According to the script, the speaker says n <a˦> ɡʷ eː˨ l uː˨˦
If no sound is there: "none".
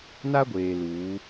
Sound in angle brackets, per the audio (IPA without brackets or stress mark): a˦